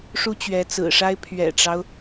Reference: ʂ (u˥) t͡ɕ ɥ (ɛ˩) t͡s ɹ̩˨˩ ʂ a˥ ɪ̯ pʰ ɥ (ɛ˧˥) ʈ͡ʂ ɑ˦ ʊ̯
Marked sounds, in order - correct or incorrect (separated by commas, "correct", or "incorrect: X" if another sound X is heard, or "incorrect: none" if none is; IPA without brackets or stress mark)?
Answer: correct, incorrect: ɛ˧˥, incorrect: ɛ̰˨˩